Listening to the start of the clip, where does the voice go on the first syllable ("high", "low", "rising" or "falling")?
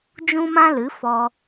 high